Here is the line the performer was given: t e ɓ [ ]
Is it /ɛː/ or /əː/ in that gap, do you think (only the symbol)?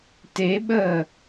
əː